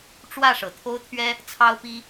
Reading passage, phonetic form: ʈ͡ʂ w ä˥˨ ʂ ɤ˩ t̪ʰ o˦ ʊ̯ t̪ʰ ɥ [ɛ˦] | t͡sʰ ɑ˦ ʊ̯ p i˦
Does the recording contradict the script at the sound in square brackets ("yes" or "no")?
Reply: no